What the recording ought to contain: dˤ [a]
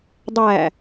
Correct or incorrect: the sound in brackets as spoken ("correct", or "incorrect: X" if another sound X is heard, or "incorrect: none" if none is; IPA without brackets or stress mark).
incorrect: æ